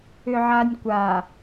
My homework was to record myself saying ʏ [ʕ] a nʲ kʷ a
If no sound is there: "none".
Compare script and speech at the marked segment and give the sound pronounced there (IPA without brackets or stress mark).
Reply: ʕ